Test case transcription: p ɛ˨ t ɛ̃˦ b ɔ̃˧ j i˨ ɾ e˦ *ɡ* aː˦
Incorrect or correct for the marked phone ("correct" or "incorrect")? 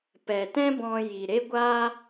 incorrect